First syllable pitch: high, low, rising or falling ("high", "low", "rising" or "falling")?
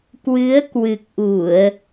rising